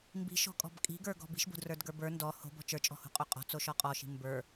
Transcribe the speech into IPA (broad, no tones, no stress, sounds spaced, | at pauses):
m b i̤ ʃ ɔ̤ kʼ ɔ̤ b kʼ i̤ ɡ ə˞ ɡ ɔ̤ b i̤ ʃ b o̤ d r ə˞ d ɡ ə˞ b ə˞ n d ɔ h o̤ b ɔ̤ t͡ʃ ə˞ t͡ʃʼ ɔ̤ h o̤ qʼ o qʼ ɔ̤ t͡s o ʃ ɔ qʼ ɔ ʃ i̤ m b ə˞